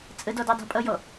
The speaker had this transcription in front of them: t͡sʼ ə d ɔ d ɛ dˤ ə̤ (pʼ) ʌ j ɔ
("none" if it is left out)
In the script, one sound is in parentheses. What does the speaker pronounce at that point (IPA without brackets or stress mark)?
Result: pʼ